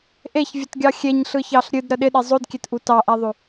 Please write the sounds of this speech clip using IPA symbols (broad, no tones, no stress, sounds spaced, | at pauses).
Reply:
ʔ e ç vʲ ə t ɡʲ ɑ xʲ e ɲ ɬ ɯ ç ɑ ɬ ɾʲ ɨ d ɾ ə ɗ ɪ ɗ e zˤ o d kʲ e t ʔ u t ɑ ʔ a ðˤ o